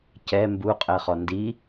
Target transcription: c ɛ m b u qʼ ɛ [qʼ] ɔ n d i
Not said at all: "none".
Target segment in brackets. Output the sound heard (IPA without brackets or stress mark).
χ